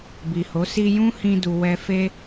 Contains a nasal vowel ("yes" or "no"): yes